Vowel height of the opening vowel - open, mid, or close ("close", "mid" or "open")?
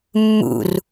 close